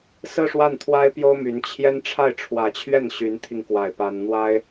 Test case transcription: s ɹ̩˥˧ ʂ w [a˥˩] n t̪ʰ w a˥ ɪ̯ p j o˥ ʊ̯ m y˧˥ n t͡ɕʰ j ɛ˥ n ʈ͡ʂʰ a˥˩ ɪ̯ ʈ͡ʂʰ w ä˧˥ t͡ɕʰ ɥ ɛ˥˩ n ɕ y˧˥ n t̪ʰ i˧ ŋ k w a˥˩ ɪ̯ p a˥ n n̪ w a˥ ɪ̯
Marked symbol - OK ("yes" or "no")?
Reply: yes